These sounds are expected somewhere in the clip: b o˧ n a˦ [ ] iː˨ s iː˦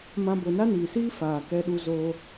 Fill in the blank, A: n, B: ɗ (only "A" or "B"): A